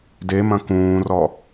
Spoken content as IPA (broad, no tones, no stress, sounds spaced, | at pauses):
d e m ɐ̃ k ũː r ɔ